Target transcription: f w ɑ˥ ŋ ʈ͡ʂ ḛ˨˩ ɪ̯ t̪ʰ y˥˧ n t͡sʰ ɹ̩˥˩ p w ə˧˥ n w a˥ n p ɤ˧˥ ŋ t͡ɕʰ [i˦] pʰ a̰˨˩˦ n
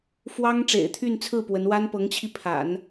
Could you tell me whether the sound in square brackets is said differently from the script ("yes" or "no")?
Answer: yes